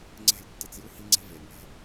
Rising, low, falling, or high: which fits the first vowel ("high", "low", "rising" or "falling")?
falling